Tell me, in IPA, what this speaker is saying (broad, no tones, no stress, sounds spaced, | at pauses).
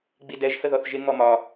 ɡ͡b i d ɛ ʒ h ə ð ɔ θ ʒ ɪ ŋ ɔ m ɒ